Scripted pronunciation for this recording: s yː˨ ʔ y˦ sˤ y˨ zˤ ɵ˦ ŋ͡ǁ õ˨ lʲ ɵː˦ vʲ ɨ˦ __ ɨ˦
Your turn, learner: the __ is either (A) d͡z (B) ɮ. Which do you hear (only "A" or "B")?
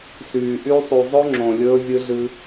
B